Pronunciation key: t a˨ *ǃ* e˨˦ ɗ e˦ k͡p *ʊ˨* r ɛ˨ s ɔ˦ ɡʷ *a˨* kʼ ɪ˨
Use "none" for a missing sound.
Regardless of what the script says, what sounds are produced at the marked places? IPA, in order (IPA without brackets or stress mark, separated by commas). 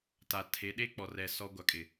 tʰ, ɔ˨, a˨